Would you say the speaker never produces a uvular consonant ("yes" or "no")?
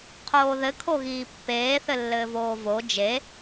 no